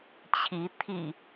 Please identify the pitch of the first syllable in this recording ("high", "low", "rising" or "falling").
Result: rising